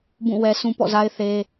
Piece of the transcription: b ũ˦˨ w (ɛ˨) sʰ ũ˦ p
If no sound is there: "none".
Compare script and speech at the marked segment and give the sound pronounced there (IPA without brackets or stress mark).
ɛ˦